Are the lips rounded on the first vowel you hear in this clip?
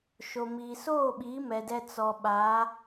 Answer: yes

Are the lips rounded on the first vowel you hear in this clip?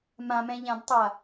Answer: no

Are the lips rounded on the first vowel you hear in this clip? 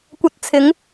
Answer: no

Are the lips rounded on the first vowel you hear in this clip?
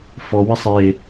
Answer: yes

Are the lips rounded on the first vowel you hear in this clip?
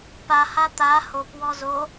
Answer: no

